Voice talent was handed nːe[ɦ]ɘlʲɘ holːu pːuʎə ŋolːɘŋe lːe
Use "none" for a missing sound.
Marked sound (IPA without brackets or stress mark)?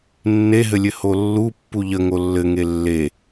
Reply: ɦ